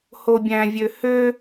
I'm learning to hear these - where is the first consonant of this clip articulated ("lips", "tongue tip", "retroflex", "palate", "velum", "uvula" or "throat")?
throat